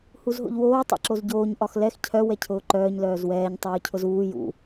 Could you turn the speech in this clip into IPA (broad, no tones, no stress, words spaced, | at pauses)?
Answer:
huzɦo̰ʎwoː tˤɛ̰ǁozɟoːɲ ʔɒxlɛx cʰœ wɛcʰʊːǃœːɲ lœːzwɛːɲ tˤoːcʰʊzuː jṵ